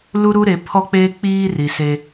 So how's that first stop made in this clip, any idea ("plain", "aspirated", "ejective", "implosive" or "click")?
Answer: aspirated